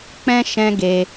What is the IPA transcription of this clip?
k͡p ɛ̃˧ ʃ ɛ̃˦ ɡ e˧

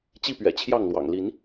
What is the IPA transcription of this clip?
t͡ɕ i˥˨ p ɥ ɛ̰˨˩ t͡ɕʰ j ɑ˥˨ ŋ l w ɑ̰˨˩ ŋ l i˨˦ n

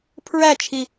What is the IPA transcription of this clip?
pʰ ɹ æ t͡ʃʰ i

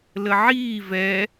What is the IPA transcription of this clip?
l ə ʕ iː v ɛ

